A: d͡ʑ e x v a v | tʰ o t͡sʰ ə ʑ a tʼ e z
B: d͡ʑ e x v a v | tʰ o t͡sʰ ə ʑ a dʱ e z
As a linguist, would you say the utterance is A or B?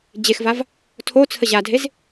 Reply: B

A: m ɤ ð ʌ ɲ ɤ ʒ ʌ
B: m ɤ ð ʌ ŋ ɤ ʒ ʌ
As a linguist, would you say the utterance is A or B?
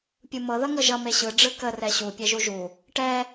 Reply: B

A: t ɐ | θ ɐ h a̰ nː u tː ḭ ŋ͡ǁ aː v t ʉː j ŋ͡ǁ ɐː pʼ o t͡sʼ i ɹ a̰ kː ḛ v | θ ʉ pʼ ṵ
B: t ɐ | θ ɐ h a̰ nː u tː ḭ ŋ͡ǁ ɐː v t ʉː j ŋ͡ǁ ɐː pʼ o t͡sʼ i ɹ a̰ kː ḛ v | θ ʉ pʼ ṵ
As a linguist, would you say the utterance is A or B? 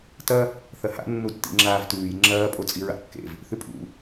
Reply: A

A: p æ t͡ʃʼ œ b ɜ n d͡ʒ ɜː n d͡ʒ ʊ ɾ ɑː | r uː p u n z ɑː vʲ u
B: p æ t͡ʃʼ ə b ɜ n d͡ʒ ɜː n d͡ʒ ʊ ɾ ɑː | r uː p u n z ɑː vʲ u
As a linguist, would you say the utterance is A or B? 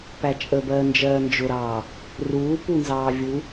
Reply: B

